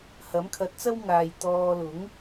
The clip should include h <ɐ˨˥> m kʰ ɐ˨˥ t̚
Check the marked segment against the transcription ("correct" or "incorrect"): correct